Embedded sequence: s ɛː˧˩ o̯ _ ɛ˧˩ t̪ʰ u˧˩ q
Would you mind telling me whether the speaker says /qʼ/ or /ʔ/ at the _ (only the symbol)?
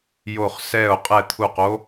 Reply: qʼ